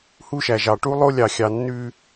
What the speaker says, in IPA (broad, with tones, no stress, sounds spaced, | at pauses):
h u˦ ʃ æ˨ ʒ ɑ˨ ʈ u˦ lˠ o˦ lʲ ɑ˨ xʲ ɑ˨ nː ʉ˦